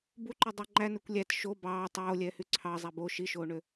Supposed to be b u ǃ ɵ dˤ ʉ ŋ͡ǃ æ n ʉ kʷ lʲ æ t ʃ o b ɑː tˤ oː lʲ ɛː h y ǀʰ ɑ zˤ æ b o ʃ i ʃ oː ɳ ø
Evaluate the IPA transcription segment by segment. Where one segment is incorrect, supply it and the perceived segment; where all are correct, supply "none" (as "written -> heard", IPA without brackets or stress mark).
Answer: none